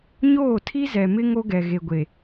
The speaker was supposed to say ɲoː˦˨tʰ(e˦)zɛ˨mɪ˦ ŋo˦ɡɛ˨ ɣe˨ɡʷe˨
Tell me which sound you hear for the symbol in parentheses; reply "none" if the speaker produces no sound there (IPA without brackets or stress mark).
i˦